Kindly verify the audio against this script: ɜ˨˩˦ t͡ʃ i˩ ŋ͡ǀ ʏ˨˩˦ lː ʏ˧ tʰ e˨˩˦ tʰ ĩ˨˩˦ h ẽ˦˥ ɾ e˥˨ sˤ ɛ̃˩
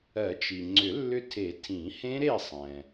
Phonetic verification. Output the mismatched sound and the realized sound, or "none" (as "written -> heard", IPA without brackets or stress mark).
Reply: none